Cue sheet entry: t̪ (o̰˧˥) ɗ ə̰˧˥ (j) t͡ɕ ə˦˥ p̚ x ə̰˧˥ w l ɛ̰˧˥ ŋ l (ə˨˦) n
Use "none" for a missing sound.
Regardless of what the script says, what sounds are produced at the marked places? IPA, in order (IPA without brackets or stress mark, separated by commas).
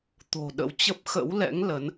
o̤˨˩, w, ə˨˦